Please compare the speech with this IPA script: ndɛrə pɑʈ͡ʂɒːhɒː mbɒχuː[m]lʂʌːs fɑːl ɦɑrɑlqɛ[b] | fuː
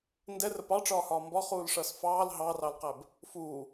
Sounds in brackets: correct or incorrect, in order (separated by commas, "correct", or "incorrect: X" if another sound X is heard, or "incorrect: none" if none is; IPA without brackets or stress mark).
incorrect: none, correct